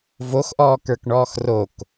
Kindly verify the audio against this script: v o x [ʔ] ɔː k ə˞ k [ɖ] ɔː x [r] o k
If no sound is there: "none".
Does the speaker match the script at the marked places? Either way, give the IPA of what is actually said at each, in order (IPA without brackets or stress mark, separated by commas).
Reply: ʔ, ɳ, r